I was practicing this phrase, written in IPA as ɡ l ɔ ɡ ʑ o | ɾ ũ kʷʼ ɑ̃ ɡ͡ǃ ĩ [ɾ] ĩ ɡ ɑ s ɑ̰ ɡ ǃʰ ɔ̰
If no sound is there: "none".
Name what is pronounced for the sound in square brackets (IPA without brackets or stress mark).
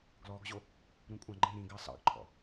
ɾ